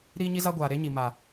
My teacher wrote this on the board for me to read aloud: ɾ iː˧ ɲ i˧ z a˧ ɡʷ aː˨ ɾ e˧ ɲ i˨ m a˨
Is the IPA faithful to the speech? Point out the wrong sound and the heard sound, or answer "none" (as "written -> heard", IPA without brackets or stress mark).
none